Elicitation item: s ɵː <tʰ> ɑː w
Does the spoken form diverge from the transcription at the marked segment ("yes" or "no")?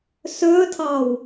no